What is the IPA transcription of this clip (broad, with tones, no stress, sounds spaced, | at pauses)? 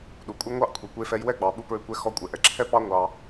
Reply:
ɗ u˨ kʷʼ ɛ˦ ŋʷ ɑ˦ ʔ kʷʰ i˨ kʷ e˧ f ɛ˧ j w ɛ˦ ɡ͡b ɑ˨ ɓ u˧ p ɹ ʏ˧ kʷ ɛ˧ x ɔ˧ kʷʼ ɛ˨ ʔ ɛ˨ ǁʰ ɛ˦ p ɑ˦ ŋʷ ɑ˧